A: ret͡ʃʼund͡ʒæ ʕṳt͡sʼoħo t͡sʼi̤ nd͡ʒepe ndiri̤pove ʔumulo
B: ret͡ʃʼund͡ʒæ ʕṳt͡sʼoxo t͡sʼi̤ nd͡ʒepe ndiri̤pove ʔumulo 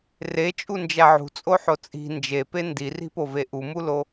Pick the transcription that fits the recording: A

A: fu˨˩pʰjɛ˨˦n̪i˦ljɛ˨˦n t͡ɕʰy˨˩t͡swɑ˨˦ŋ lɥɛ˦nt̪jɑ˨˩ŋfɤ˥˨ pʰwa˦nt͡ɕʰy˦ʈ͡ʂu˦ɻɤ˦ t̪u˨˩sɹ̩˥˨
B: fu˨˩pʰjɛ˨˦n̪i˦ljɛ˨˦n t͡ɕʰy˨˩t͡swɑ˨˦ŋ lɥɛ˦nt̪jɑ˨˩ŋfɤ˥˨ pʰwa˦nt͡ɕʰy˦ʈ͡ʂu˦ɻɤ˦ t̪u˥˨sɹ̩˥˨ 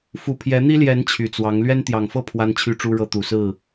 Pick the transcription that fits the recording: A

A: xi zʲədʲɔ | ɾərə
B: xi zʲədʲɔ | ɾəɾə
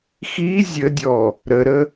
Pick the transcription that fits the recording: B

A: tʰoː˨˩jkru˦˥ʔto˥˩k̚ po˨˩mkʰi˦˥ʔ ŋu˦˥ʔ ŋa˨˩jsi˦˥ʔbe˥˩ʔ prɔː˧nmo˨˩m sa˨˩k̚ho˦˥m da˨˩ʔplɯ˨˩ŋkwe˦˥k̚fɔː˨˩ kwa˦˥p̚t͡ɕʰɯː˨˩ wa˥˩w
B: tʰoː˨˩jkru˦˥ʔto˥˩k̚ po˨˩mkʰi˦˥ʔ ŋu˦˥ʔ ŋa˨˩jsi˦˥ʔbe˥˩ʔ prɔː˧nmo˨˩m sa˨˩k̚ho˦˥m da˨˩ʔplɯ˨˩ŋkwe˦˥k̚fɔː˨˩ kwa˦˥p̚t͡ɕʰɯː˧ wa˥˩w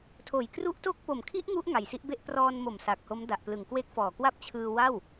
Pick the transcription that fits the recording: B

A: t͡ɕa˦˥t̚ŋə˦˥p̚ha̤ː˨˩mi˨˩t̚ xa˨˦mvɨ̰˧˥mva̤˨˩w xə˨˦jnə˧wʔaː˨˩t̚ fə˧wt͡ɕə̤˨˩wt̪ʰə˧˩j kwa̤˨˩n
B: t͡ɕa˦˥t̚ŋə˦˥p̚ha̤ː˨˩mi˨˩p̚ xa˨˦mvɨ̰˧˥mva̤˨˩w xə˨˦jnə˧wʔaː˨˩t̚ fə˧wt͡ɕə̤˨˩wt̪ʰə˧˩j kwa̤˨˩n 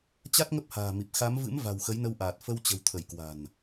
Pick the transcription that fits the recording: B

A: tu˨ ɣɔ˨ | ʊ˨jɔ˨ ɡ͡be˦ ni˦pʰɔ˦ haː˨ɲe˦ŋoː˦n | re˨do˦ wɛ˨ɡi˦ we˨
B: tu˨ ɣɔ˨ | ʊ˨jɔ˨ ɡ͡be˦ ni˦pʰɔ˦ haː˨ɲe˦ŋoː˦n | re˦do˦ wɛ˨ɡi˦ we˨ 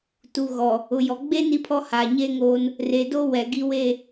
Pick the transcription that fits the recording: A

